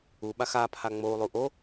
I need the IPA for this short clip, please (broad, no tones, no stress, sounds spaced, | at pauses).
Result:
u ɓ a x a pʰ a ŋ͡m o u̯ lˠ u ʔ o